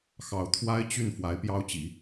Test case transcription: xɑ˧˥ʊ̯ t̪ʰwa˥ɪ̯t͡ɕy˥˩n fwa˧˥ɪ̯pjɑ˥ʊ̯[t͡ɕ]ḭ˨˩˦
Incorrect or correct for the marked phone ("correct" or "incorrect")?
correct